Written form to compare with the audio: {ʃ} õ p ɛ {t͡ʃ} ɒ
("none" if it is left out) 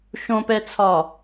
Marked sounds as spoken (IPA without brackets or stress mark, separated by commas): ʃ, t͡sʰ